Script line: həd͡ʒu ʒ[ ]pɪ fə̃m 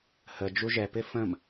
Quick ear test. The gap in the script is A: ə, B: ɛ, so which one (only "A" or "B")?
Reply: B